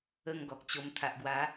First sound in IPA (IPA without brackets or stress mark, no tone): ə